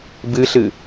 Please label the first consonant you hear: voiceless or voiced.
voiced